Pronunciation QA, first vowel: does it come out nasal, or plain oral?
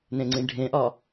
nasal